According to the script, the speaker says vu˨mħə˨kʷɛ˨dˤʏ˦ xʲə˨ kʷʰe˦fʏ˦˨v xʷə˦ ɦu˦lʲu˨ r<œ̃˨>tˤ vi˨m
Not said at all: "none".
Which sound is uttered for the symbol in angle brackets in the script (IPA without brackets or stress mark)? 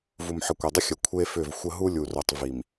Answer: œ˨